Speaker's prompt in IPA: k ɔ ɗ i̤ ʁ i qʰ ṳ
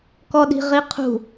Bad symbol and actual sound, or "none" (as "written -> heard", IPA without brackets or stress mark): none